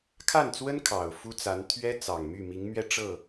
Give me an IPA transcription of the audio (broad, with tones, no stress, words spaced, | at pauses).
kʰa˥˩nt͡swə˥n kʰɑ˨˩ʊ̯fu˥t͡sa˧˥n t̪ʰɥɛ˥ t͡sɑ˨˩ŋmy˥˩ mi˧˥ŋmɥɛ˥˧ ʈ͡ʂɤ˥˩